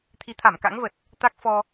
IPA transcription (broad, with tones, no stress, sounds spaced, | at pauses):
t̪ʰ i˨˦ t̪ʰ a˧˩ m k a̰˧˥ ŋ v ə˨˩ t̚ | t̪ a˦˥ k̚ f ɔ˧